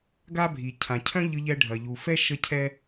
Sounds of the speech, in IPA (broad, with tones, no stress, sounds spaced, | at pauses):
ɡ a˥ bʱ i˩ cʰ ã˩ cʰ œ̃˥ ʎ ɯ˧ ʎ ɛ˧ ɖʱ ɐ˩ ʎ u˩ f ɛ˥ ʃ ə˥ cʰ ɛ˥